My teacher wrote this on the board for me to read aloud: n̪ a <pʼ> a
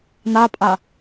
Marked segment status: correct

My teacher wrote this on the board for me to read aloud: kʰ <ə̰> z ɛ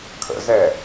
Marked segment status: correct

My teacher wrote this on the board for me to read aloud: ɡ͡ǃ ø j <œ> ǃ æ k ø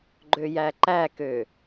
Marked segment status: incorrect: æ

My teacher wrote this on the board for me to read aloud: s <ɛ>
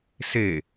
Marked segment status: incorrect: e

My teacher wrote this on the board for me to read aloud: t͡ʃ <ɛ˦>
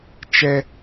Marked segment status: correct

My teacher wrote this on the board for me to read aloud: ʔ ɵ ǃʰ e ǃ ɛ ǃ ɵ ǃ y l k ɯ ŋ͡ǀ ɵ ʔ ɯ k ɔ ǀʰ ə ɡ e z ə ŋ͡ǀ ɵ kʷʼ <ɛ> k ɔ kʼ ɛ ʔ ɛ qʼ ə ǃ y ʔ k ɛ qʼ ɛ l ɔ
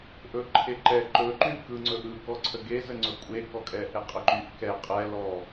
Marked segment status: incorrect: e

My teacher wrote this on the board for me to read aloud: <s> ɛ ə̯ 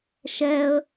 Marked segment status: incorrect: ʃ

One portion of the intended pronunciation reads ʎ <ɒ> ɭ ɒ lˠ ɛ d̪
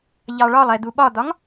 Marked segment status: incorrect: ɑ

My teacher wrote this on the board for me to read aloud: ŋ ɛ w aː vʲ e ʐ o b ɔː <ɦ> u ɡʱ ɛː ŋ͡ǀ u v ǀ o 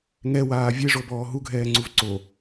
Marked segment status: correct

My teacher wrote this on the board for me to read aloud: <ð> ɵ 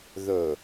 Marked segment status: correct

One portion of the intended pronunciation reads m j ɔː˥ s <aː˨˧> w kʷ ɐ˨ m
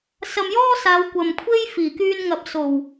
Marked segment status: correct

